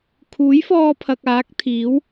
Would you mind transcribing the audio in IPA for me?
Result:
kʰ uː˨˥ j f ɔː˧ pʰ ɐ˨ k̚ aː˨˥ k̚ t̪ʰ iː˨˥ w

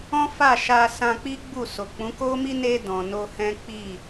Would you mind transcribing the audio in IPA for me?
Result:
ɔ̃˦ f a˦˨ ʃ a˧ s ã˧ k͡p i˦ ɡ͡b u˦˨ s o˨ k͡p ũ˨˦ k o˦ m i˦ n e˧ d ɔ̃˨ n o˧ h ɛ̃˦ k͡p i˦˨

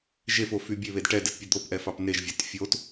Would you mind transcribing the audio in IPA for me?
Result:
ʒ e f o f y bʲ e β e d ʈ ɛ d ɘ t pʲ ɛ d̪ o p ʔ ɛ f ɑ p n e ʒ vʲ a t fʲ o t

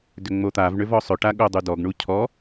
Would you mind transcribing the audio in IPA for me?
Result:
d ʏ ŋ͡m o t̪ a v ɳ ʏ v ɔ sˤ ʏ ʈ a ɠ o dˤ u d ɔ ɡ ɳ u cʰ ɔ

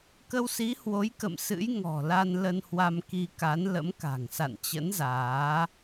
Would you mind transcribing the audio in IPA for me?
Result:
k ə˧ w s i˨˦ h w o˨˦ j k ə̰˧˨ m s ɨ̰˧˥ j ŋ ɔ̤˨˩ l a˧ n l ə˧ n h w a˧ m k i˧ k a˨˦ n l ə̰˧˥ m k a̤˨˩ ŋ s a̰˧˨ n t͡ɕ ə̰˧˥ n z aː˨˦

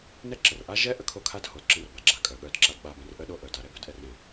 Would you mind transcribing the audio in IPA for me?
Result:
n ɛ˦ ǁ ə˨ r ʔ a˦ ʒ ɛ˦ ʔ ə˧ kʰ o˧ kʰ a˧ d h o˨˦ d ǁ ə̃˦ r b a˨ ɡ͡ǁ a˧ kʼ œ˨ ɠ œ˨˦ d ǁ a˧ d ɓ a˧ b ɛ̃˧ r ʔ ə˦ ɗ o˦ ʔ œ˨ d a˧ ɾ ɛ˦ b œ˦ d ʔ ɛ˧ r ɾ ɛ̃˨

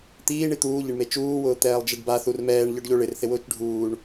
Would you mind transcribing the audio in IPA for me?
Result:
t̪ iː ɳ i t̪ uː ʎ ɪ ɳ m e t͡ʃ uː w ʊː t̪ ɛː lˠ d͡ʒ e ɖ b a θ u r m ɛː ɳ ʎ ɔ ɖ ʎ o ɭ ɪ r θ ɪ w ʊː t͡ʃ ɖʱ uː ɳ

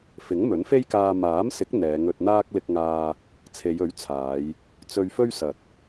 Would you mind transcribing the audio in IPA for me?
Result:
f ɪ˨˥ ŋ m ɵ˨˥ n f e˥ j k aː˧ m aː˨˥ m s ɪ˨˥ k̚ n̪ ɛː˨˧ ŋ ɵ˧ t̚ n̪ aː˥ k̚ l ɪ˧ k̚ ŋ aː˧ | t͡sʰ e˨˧ j ɵ˨˥ ɥ t͡sʰ aː˨˧ j | t͡s ɵ˧ ɥ f ɵ˥ ɥ s ɐ˨ t̚

